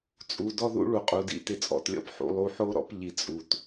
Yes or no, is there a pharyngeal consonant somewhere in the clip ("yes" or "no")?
yes